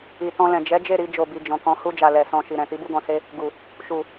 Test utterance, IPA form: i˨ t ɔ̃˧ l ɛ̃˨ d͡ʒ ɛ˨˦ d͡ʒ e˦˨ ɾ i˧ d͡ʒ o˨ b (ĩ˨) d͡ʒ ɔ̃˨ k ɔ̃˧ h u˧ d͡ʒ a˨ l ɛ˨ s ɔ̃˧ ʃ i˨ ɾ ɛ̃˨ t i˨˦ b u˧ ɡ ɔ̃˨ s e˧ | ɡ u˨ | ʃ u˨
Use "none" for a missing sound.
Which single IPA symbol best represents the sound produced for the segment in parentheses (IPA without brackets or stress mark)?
i˨